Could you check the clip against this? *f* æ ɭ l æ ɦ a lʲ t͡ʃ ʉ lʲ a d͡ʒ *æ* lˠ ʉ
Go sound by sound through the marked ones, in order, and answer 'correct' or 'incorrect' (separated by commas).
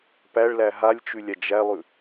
incorrect, correct